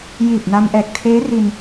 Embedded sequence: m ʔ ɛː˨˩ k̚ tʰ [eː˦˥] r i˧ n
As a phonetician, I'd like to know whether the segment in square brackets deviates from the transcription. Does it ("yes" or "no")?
no